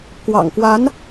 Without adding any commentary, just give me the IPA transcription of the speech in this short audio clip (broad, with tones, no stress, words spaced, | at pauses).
kwɑ̰˨˩ŋkwa˧˥n